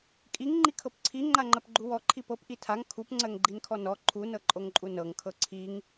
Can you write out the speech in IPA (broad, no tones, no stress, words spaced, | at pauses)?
kʼiŋ ŋ͡ǃikʰɤpǀʰi ŋ͡ǃaŋ͡ǃɜpɡ͡ǃuwɔ ǃʰipɤp ʔitʰaŋ kʰup ŋ͡ǀɜŋɡ͡ǃinkʰɔnɔ ǃʰu nɤǃʼoŋǃʼunɤŋ kʰɤǀʰiŋ